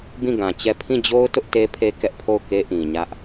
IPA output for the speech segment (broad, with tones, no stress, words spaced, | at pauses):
bĩ˦˨ɡã˨t͡ɕɛ˦˨ pʰĩ˦˨d͡ʑo˦ʊ̯ tʊ˦ʔte˦pʰe˦ kɛ˦ʔpʰo˦˨ʊ̯ke˦ ʔĩ˨ɲä˦ʔ